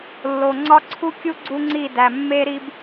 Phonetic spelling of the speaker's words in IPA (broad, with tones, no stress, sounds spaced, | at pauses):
lː o˨ ŋ͡ǀ ɒ˦ ǀʰ u˦ kʲ u˦ ɡ͡ǀ u˦ ŋ͡ǀ i˦˨ d æ˨ mː e˦ ɾ i˦ b